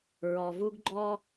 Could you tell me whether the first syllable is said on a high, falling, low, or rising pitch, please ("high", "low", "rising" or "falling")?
low